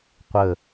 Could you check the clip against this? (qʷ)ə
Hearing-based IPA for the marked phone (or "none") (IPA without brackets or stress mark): qʷ